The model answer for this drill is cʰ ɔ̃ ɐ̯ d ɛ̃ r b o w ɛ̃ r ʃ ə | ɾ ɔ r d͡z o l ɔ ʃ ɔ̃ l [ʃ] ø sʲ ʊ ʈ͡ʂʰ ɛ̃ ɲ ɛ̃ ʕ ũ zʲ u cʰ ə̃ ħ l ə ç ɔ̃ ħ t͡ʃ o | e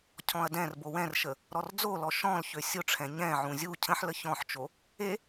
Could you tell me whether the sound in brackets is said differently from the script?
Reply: yes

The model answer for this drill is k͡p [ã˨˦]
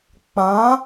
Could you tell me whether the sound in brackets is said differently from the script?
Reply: no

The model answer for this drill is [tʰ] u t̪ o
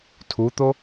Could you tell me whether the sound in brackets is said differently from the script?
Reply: no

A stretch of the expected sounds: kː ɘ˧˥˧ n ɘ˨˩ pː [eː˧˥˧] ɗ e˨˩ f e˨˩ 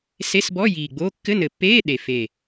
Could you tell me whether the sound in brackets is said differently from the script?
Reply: no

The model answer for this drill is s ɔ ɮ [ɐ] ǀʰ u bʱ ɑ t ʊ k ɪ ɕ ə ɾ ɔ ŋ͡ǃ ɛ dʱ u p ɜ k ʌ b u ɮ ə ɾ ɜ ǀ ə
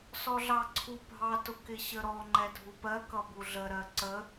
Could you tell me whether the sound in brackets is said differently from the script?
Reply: yes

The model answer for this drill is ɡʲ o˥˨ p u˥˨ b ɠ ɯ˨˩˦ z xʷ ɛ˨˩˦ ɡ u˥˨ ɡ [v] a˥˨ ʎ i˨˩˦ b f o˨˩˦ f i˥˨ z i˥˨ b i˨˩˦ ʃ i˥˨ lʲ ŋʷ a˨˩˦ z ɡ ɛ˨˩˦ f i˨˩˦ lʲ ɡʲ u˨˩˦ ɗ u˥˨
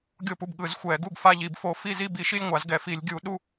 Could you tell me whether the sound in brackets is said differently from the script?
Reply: yes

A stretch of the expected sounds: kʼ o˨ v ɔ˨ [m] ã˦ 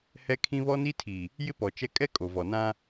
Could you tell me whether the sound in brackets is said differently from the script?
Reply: yes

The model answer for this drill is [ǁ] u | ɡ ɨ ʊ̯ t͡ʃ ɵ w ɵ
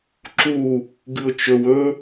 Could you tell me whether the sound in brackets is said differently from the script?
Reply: no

